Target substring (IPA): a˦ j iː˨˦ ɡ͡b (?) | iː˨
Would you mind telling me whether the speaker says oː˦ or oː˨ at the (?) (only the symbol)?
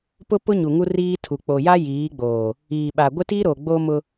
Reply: oː˨